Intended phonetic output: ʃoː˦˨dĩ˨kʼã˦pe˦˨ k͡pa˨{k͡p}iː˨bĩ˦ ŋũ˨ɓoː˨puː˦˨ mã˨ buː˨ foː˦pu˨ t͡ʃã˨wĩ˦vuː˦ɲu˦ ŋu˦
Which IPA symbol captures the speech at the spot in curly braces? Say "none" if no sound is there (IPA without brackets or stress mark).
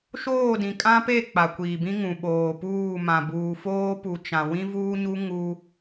kʷ